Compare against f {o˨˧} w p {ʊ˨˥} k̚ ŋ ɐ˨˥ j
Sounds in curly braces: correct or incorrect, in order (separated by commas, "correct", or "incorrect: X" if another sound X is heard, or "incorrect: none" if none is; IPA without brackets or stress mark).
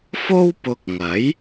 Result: incorrect: o˥, incorrect: ʊ˧